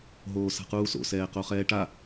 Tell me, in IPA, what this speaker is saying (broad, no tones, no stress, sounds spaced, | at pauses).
ɦ oː s a̤ q uː s o̰ s ɛː q o χ ɛː ʈ a